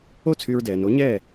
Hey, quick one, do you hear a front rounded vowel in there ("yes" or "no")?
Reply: yes